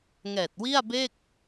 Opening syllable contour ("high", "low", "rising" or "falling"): low